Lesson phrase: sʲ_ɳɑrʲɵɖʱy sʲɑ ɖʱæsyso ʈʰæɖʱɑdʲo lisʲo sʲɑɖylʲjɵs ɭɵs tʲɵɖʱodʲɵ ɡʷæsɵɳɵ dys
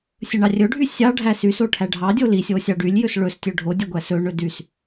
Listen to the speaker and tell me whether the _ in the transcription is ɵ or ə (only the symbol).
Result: ɵ